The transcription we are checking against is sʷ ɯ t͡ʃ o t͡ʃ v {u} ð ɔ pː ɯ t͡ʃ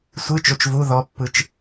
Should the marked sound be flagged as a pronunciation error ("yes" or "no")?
no